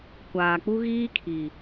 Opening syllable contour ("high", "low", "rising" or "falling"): low